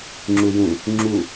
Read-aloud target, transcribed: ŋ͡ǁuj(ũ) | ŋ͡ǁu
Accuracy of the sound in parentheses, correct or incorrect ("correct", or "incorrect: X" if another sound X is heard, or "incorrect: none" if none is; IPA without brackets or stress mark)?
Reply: correct